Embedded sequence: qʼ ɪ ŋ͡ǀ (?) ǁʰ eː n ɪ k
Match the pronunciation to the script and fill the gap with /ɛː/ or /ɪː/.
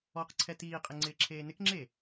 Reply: ɪː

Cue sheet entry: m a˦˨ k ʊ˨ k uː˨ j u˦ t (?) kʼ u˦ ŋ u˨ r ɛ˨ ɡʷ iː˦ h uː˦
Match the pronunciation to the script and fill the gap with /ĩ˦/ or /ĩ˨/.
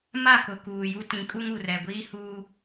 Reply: ĩ˨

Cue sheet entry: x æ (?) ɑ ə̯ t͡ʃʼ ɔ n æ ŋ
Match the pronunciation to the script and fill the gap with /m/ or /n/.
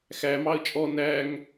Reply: m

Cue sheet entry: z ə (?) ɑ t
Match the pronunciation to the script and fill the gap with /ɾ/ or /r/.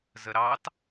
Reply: ɾ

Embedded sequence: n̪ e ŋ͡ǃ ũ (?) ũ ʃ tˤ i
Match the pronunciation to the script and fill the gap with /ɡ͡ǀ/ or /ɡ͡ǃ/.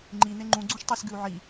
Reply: ɡ͡ǀ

